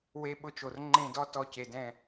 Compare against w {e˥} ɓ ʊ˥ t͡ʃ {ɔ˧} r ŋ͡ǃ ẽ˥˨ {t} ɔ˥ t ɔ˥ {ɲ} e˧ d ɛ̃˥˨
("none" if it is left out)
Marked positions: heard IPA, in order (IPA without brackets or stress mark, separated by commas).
e˥, o˧, d, c